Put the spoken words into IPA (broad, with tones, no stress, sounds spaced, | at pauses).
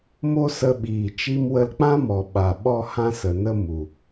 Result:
m o˦ s ə˧ ɓ iː˨ t͡ʃ i˧ m w ə˧ l k͡p ã˦ m ɔ˨ ɓ a˨ ɓ ɔ˦ h ã˦ s ə˨ n ə˦ m u˨